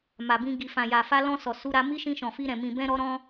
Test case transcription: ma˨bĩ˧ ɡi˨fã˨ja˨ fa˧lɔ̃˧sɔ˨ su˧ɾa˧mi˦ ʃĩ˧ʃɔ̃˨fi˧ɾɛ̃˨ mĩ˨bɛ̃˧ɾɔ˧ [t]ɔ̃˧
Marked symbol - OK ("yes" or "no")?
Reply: no